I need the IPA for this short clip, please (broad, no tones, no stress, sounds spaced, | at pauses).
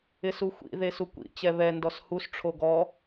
ɪ s u xʷ ḭ ð e s u kʷ ḭ t͡ɕ ɛ β ɛ n d ɔ s h u s ʈ͡ʂʰ o ɡ ɔ